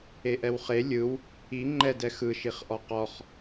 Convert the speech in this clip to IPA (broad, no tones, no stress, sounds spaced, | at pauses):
e ʔ ɛ w χ e lʲ ɯ w | i ŋ͡ǃ ɛ d ɛ x ɯ ʃ i χ ʔ ɔ q ɔ χ